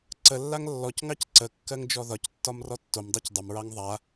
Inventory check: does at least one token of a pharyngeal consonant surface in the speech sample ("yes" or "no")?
no